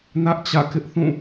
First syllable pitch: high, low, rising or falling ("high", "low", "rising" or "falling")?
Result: high